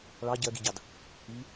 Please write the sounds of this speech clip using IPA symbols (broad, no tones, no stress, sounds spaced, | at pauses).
ɭ ɑ ɟ ɜ ɡ i ɟ ɑ d | i